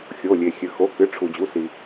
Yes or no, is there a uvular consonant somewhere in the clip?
no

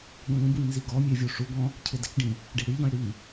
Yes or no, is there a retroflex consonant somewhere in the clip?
yes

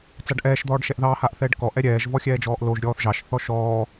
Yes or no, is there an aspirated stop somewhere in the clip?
no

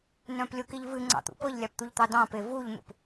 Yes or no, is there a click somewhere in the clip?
yes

